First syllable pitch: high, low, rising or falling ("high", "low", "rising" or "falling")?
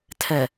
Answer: low